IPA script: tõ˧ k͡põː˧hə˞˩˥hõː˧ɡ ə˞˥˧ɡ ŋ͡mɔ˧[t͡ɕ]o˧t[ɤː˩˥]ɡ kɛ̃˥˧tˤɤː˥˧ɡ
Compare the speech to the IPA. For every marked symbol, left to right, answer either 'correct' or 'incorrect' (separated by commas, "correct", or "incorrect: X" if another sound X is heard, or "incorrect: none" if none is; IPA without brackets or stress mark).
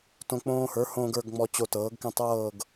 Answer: correct, correct